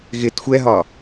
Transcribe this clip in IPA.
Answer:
ɣ ɪ t xʷ ɛ ɦ ɒ

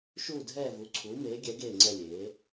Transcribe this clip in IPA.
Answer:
ʃ uː˥˧ dʱ ɛː˥˧ v u˨˥ ǀʰ uː˨˥ m eː˨˥ ɡʲ ɛ˨˥ ɡ eː˥˧ ŋ͡ǀ ɛ˥˧ lʲ eː˨˥

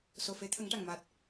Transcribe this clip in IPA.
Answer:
s o˨˩ f e˧˥ t̪ʰ ə˨˩˦ ŋ ʈ a˨˩ ŋ m aː˨˩ t̚

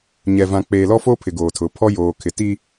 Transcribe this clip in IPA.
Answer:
ɲ ɛ˨ v ã˨ k͡p eː˨ l ɔ˦ f o˦ pʰ ɪ˨ ɡ oː˨ tʰ ʊ˨˦ pʰ ɔ˦ j oː˨ kʰ ɪ˨ t i˦

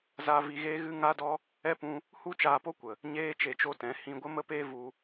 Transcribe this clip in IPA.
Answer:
z a˦ v i˧ ɣ eː˦ ɣ ɨ˦ ŋ a˦ d ɔ˦ | ɛ˦ p ũ˧ | h u˦ t͡ʃ aː˧ p o˦ kʷ ə˨ | ɲ eː˦ t͡ʃ e˧ t͡ʃ o˦ t ɛ̃˨˦ h ĩ˧ ɡʷ ə˦ m ə˦ p eː˦ v u˧

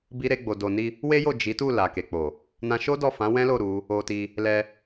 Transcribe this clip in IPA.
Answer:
b i˦ ɾ e˦ ɡ͡b o˧ d o˧ n i˧ | w e˦ j o˦˨ d͡ʒ i˨˦ t u˦˨ l a˨ k e˨ k͡p o˨ | n ã˧ ʃ o˦ d ɔ˦˨ f ã˨˦ w ɛ̃˦ l o˦˨ ɾ u˨˦ | o˧ t i˧ | l ɛ˧

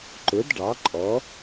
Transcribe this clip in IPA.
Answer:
ǃ ʊ˩˥ d ɖ ɑ˩˥ ǃʼ ɔ˩˥

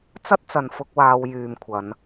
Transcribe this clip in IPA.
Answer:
t͡s ɐ˥ t̚ t͡s ɐ˧ n f ʊ˥ k̚ w aː˥ w j yː˧ m kʷʰ ɐ˨˥ n

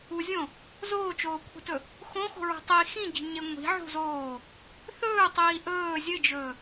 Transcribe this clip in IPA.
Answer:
u zʲ õ | z oː t͡ʃ oː kʷʰ i̤ t ɵ | x õ x o̤ ɹ o̤ tˤ i x ĩ ɟ i̤ ɲ e ŋʷ i̤ ʕ ṳ z oː | θ ɵː tˤ iː ʔ ɵː zʲ ɨ d͡ʒ ɵː

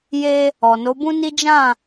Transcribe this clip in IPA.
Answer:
j e˦ | ɔ˨ n o˨˦ b ũ˦ n i˦ d͡ʒ ã˦˨

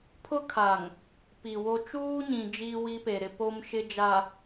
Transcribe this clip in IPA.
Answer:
pʰ ʊ˦ kʰ a˨ ŋ | p i˨ w o˦ t͡ʃ uː˦ ɲ ĩ˨ d͡ʒ iː˦ w i˦ p e˨ ɾ ɪ˦ p o˦ m ʃ ɪ˦ d͡ʒ a˨

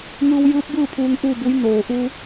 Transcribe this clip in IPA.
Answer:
ŋ ɯː˧ w j ɯː˧˥ p̚ b ɯː˥˨ pʰ uː˧ ŋ ʔ uː˥˨ b u˧˥ j n oː˩ ʔ u˧

